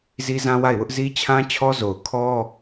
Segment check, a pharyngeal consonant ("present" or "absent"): absent